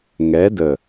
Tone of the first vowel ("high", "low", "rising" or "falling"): rising